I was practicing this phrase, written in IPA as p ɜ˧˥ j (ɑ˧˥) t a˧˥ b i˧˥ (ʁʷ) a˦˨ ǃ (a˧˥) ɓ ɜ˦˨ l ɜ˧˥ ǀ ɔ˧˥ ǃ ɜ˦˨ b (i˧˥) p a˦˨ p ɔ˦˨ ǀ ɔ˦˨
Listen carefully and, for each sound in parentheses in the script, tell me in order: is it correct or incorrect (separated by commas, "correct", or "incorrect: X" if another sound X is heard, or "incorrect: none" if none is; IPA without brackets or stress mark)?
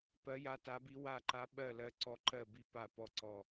incorrect: a˧˥, incorrect: w, correct, incorrect: i˦˨